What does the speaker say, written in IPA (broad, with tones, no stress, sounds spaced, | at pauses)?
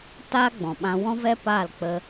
t aː˦ ɡ͡b ɔ̃˨ ɓ ã˧ w ɔ̃˦ v ɛ˦ p aː˦˨ l k͡p ə˧